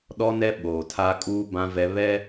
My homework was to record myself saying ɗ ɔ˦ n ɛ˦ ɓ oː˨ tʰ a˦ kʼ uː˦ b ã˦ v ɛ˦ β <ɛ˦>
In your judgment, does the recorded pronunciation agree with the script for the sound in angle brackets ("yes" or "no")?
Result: yes